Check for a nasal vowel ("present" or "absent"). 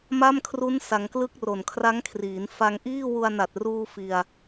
absent